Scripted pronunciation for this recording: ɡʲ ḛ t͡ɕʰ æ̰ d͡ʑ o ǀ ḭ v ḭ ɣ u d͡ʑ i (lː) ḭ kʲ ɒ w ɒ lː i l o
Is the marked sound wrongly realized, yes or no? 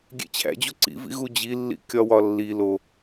no